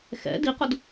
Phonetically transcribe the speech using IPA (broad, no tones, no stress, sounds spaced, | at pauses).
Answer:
x ɛ̰ d i q ʊ d